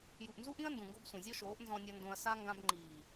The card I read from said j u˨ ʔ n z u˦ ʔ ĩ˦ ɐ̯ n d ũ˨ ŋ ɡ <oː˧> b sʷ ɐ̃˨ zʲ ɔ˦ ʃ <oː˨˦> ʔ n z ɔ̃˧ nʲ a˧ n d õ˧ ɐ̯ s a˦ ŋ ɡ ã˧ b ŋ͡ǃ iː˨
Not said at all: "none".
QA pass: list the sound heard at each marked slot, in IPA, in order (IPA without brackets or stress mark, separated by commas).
o˧, oː˨˦